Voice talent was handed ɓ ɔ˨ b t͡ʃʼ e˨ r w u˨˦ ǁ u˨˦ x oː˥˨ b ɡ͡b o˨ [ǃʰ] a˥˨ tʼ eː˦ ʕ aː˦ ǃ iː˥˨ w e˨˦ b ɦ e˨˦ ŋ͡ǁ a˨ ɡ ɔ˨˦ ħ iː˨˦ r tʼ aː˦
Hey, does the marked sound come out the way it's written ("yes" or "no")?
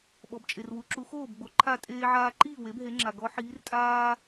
yes